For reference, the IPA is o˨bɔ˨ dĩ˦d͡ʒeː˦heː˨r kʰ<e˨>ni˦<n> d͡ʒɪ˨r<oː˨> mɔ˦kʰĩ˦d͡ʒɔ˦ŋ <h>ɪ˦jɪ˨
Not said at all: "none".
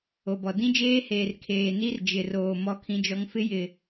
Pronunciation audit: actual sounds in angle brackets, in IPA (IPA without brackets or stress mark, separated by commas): eː˨, r, oː˨, f